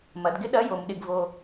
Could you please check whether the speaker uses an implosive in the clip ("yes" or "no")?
yes